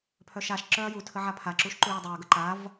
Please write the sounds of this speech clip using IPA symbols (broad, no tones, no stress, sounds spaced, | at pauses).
pʰ œ ʃ a ʃ ǁ œ ɐ̯ j u tʰ ə ʕ a pʰ a ǁ u ʃ ǃ u j ɐ dˤ u ɐ̯ ɡ ə ǃ a v